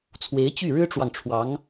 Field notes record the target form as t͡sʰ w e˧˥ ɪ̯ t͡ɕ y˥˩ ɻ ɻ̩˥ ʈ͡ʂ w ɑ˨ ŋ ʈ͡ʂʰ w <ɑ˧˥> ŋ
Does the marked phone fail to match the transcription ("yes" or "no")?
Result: no